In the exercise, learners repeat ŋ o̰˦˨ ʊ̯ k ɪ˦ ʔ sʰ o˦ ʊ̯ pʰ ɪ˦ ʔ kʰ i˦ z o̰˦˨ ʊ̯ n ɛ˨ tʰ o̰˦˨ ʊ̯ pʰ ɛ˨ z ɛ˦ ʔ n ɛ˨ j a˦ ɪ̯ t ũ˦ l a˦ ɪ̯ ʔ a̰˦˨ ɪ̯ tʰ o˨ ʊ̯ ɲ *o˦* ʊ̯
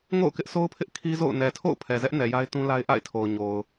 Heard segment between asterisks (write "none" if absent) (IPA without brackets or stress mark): o˨